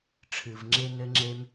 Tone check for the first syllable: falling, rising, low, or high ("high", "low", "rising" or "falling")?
low